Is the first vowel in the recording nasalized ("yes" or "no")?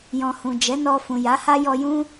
yes